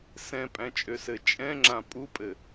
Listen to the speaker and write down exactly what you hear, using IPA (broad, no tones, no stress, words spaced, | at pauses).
sɛ̃pʼæ̃t͡ʃʼøsɘ t͡ʃʼɛ̃ŋ͡ǁã pʼupʼɘ